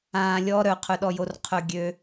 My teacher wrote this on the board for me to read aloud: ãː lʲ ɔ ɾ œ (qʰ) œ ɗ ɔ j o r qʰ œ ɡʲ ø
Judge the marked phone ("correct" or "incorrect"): correct